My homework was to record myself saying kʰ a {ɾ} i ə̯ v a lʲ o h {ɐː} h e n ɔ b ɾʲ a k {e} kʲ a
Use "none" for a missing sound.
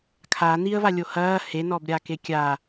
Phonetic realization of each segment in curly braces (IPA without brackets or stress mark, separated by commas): n̪, ɐː, e